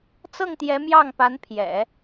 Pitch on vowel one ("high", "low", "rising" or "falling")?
falling